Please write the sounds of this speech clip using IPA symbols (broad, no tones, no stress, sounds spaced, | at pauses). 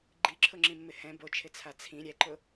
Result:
ɡ͡ǃ i ǁʰ ʊ ŋ͡ǁ ĩ mː ɪ h ɛ̃ b o t͡ʃʰ ɪ t͡sʰ a t͡sʰ ĩ ɾʲ ɛ ǃ ʊ